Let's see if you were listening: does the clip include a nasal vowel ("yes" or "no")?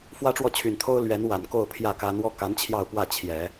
no